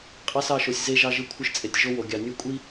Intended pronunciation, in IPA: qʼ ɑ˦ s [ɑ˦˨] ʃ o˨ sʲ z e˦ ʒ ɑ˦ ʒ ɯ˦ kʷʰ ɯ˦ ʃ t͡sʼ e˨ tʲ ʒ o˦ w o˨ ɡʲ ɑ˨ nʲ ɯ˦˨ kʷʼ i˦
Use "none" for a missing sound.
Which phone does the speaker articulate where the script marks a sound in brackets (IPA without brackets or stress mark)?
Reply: ɑ˦˨